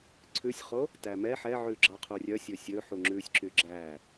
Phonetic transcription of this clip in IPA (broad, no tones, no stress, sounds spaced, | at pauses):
ǀʰ ʉ sʲ χ o | t æ m ɛ ħ ɛ ʕ ʉ ɡ͡ǁ ɑ qʰ u rʲ œ sʲ ɵ sʲ ɵ ħ u ŋ͡ǁ ʉ sʲ ǁ y ɡ͡ǁ æ